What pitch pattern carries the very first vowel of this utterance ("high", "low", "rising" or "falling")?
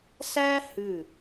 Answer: high